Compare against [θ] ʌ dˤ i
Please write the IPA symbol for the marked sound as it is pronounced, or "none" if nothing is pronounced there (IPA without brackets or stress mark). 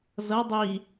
z